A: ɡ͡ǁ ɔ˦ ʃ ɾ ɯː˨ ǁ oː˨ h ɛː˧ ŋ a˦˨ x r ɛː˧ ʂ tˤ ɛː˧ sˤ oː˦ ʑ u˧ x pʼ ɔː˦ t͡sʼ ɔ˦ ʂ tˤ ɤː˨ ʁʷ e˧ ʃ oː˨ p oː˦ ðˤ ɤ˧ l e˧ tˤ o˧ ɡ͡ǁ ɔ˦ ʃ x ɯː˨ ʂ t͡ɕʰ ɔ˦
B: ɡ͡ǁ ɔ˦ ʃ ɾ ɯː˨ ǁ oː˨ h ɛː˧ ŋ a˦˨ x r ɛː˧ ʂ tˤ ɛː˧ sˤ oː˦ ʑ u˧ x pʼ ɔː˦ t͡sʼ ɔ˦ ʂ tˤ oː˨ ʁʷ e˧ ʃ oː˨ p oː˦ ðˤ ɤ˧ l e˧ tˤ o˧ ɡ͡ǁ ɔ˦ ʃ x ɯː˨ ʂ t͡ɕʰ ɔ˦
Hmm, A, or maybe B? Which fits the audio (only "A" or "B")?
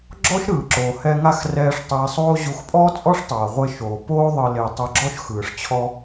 A